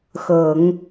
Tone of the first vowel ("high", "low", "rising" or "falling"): low